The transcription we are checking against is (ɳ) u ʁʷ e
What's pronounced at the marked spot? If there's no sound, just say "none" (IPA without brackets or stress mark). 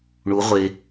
ɳ